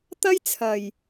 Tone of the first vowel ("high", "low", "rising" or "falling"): high